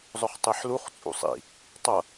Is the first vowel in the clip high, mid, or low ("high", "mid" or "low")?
high